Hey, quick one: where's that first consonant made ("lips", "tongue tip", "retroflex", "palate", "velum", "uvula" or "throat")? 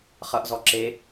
uvula